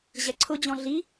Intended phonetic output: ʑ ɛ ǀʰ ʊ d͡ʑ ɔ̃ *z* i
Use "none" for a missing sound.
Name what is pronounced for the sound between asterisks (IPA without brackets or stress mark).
ɮ